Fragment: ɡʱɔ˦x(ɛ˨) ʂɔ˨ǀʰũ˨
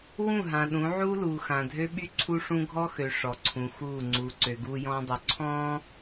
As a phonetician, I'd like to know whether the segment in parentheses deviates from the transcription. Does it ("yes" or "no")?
yes